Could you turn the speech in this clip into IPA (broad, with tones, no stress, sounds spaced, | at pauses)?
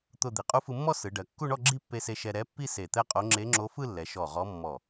t̪ ʊ˥˧ d̪ i˩˧ qʼ u˧˥ f ɯ˧ mː ɔ˥˧ s ɯ˩˧ ɖ ɜ˩˧ kː u˥˧ ɳ ɔ˥˧ ɡ͡ǁ i˥˧ pː e˧ s e˧ ʃ ɛ˧ ɾ ɛ˧˥ pː i˥˧ s e˧˩ t̪ ɛ˥˧ qʼ o˧˥ ŋ͡ǁ e˧˥ ŋ͡ǁ o˧˥ f ɯ˥˧ lː ɛ˩˧ ʃ ɔ˧˩ ʁ ɔ˧˥ mː ɔ˧˩